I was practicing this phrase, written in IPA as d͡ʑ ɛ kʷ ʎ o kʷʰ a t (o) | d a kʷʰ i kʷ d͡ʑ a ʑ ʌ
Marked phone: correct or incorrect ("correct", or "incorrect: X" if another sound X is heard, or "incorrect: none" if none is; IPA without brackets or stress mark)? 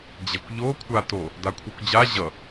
correct